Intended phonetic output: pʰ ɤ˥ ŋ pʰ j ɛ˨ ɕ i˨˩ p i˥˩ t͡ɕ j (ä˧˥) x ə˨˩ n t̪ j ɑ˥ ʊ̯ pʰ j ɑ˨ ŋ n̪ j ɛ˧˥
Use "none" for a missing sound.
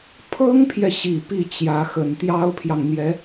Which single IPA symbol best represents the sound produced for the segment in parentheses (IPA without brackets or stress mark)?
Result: ä˧˥